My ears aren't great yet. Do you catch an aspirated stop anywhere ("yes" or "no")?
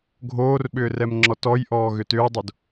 no